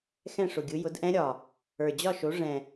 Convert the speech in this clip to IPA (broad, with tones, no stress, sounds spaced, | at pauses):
x ɛ̃˥˨ ʂ ʊ˨˩ ɡʲ ɯ˨˥ j ʊ˨˥ d ʔ ɛ̃˦˥ ɾʲ ɒ˨˩ | ə˞˨˩ d͡ʑ ɒ˥˨ ʃ o˨˥ ʐ ɛ̃˨˩